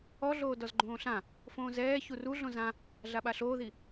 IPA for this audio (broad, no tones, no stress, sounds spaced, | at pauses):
ɔ ɮ oː d ɔ z ɡ͡ǃ õː ɬ ã | f õː z ɛː ç u r u ɮ õ z ã | ɮ a ɓ a ɬ oː ð i